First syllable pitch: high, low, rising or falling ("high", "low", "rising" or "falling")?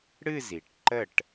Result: falling